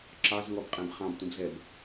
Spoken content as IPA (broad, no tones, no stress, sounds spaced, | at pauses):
ǁ ɑ z ŋ ɔ b qʼ ɛ̃ b χ ɑ̃ b tʷ ə̃ b z ɛ b